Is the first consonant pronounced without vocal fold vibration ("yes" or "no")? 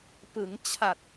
yes